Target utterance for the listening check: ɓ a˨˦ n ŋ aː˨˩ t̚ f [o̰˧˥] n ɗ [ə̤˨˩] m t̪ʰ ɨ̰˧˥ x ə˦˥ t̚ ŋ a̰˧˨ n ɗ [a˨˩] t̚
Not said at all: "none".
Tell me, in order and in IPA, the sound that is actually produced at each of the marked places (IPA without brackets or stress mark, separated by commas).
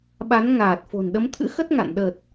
o̤˨˩, ə˨˦, ə˨˩